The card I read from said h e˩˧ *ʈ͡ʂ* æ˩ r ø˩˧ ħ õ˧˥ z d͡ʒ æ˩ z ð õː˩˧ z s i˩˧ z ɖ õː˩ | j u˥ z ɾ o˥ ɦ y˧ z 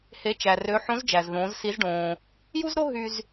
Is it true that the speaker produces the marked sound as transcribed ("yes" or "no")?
no